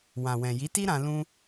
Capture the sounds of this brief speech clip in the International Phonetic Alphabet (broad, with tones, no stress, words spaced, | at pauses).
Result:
wã˨wɛ̃˨ ji˨˦ti˦ ɾã˧ lũ˦